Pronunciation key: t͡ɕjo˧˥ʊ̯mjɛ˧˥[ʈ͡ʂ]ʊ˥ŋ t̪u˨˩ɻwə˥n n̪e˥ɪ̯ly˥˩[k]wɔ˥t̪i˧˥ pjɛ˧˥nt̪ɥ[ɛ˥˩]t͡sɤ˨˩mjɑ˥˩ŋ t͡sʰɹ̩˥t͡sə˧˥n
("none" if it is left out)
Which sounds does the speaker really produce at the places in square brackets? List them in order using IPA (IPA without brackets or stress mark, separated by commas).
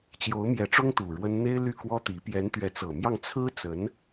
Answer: ʈ͡ʂ, k, ɛ˧˥